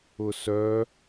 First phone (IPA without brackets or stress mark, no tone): ʊ